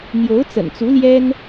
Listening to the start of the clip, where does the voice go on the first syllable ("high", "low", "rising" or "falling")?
rising